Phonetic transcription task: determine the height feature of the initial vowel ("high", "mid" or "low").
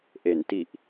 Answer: mid